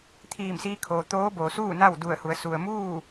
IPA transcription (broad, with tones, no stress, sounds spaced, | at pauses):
t̪ʰ iː˧˩ m s iː˧ kʰ oː˩ t̪ oː˧˥ b oː˩ s uː˥˨ n a˥˨ w d u˧˩ ə̯ h u˩˧ ə̯ s u˩ ə̯ m uː˥˨